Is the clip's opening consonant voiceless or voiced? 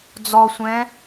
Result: voiced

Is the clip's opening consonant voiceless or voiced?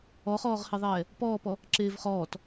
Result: voiceless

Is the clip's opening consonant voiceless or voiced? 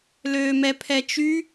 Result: voiced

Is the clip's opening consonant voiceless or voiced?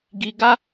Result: voiced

